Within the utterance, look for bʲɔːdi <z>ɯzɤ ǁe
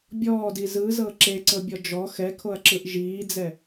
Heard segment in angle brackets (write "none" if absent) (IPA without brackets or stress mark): z